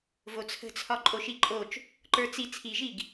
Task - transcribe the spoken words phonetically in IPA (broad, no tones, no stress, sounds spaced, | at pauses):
v o t͡sʰ ə̤ t͡sʰ ɒ ǃʼ o ʃ i ǃʼ o t͡ʃ | ǃ ə˞ t͡s i t͡sʰ i ʒ i ɡ